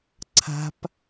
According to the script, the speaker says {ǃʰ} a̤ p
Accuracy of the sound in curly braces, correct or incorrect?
incorrect